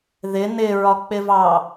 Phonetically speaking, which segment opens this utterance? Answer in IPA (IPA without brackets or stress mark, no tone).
ð